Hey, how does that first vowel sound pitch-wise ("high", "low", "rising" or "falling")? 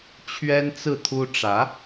high